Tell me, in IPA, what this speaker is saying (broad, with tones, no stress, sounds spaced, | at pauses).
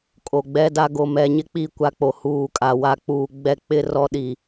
kʼ o˨ ɡ͡b ɛ˦ d a˦ ɡ o˨ m ɛ˨ ɲ ɪ˦ k͡p i˦˨ kʷ a˦ k͡p o˨ h uː˨ kʼ a˨ w a˨ k͡p uː˨ ɡ͡b ɛ˦ k͡p ɪ˦ r ɔ˦ ɗ i˨